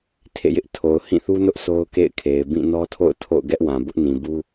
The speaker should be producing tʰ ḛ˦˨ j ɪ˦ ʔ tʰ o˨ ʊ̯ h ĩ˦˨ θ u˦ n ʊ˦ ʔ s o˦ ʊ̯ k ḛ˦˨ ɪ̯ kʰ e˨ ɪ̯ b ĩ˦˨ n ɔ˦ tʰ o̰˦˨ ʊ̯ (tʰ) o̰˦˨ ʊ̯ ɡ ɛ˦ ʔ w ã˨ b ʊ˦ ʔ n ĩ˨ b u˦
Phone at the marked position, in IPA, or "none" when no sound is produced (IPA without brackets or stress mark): tʰ